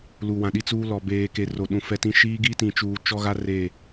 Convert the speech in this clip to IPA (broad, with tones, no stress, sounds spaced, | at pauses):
l u˨ w ã˨ ɗ i˦ t͡s uː˦ l ɔ˨ b eː˨ k e˨ r o˨ ɗ ũ˨ f ɛ˦ t ĩ˦ ʃ iː˦ ɡ i˦ t ĩ˨ t͡ʃ uː˨ t͡ʃ ɔ˦ ɣ a˦ r e˦˨